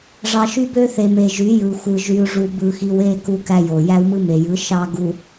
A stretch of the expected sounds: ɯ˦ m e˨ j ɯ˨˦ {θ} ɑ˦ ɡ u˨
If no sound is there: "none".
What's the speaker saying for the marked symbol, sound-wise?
ʃ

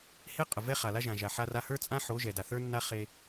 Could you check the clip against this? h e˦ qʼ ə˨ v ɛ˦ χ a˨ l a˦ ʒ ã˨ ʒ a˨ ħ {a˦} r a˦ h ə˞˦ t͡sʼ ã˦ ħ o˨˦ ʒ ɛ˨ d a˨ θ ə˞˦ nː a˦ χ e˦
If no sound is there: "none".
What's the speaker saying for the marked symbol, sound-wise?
a˦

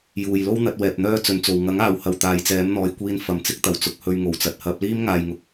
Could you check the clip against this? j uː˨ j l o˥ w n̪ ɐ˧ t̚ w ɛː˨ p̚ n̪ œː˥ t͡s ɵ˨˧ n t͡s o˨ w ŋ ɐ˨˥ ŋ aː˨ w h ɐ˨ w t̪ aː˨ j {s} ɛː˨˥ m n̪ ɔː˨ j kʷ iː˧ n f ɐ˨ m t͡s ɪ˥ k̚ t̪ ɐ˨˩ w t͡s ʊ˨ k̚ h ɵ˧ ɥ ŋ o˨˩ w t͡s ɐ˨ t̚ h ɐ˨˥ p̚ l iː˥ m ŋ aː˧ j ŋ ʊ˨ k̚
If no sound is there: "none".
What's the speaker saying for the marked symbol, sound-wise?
t͡s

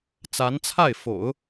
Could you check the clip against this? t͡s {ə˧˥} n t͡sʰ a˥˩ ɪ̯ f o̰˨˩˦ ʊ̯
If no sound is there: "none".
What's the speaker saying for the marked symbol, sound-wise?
a˧˥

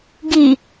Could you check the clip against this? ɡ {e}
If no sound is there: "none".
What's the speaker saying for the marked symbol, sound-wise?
i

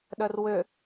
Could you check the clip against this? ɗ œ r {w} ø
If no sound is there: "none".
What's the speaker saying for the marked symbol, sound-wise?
w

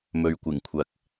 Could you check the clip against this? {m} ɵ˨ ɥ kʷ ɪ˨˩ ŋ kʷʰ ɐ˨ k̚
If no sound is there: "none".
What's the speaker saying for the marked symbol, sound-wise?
m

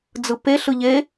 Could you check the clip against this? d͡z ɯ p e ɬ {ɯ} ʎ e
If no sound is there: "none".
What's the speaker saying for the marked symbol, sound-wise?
ɯ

